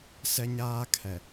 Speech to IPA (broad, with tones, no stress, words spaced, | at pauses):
sɛ˦ɲaː˦kʰɛ˨